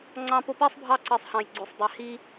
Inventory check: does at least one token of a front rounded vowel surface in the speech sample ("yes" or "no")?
yes